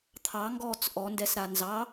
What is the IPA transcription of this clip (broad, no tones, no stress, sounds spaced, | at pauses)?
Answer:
t̪ʰ ɑ ŋ ɡ ɔː t͡s ʔ ɔ n d ɛ s ɾ a n z ɑ